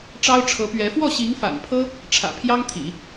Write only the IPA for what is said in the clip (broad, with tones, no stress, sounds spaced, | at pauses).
ʈ͡ʂ ɑ˥ ʊ̯ ʈ͡ʂʰ ɤ˧˥ p ɥ ɛ˧˥ f w ɔ˥˩ ɕ i˧˥ ŋ f a̰˨˩ n pʰ ɤ˥ | ʈ͡ʂʰ ä̰˨˩ pʰ j ɑ˥ ŋ t̪ʰ ḭ˨˩˦